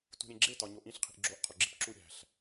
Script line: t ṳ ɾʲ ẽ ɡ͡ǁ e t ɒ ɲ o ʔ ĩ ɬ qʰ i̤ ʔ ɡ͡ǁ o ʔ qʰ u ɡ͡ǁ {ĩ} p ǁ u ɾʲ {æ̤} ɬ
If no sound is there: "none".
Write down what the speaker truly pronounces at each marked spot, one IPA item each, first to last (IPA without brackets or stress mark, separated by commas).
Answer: i, æ̤